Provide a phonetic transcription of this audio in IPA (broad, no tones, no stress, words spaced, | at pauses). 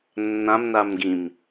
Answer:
nːãm namɡĩm